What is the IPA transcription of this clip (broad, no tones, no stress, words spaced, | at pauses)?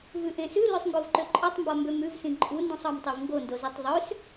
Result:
vʉʔẽsʉ løsˤŋɡovǃøǃʼɒtˤ mbɒmbømʉv sĩǃʼu ndũsˤɒmtˤevŋɡo ndozitˤðˤøs